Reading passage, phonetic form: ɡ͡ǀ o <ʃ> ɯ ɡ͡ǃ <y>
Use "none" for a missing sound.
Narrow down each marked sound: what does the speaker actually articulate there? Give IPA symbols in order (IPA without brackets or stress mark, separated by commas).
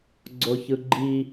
ç, i